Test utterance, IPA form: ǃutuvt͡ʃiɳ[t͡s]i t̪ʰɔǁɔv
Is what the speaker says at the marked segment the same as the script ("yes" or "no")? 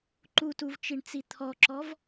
yes